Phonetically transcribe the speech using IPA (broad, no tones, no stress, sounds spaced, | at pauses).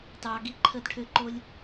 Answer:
t ɑ ɡ i ǃʰ ə d ʈʰ ʏ ǃ o lʲ